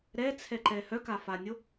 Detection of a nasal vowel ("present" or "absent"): absent